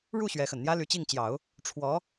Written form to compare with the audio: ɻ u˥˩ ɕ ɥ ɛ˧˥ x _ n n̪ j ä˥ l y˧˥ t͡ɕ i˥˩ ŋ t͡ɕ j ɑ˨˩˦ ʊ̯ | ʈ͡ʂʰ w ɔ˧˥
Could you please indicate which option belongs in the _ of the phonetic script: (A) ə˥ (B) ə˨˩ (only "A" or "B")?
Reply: B